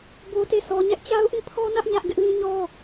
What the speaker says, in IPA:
b o˦ t e˦˨ s ɔ˦ ɲ ɛ˦ ʔ t͡ɕ a˦ ʊ̯ ʔ ĩ˦˨ pʰ ɔ˦ n ä˦ ʔ ɲ ä˦ ʔ ɡ ɪ˦ ʔ l ĩ˦ ɲ ɔ˦

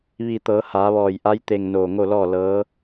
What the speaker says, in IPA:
ʋ i˧˩ t̪ ɤː˩˧ h aː˩˧ ʋ ɔː˧˩ j ʔ a˧˥ j t̪ e˧˩ ŋ n oː˧˩ ŋ o˥˨ l ɔː˥˨ l ɤː˧˥

